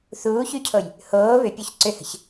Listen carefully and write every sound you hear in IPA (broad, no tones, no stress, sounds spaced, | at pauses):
θ uː ç y cʰ o j | h oː β ʏ pʲ o ç ǀ ʏ h ə̤ ç